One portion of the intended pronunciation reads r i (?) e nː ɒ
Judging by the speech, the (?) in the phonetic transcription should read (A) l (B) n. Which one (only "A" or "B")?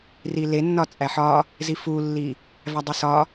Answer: A